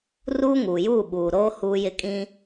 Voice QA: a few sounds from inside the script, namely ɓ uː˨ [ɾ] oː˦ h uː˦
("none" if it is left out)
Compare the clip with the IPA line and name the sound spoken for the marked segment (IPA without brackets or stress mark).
ɾ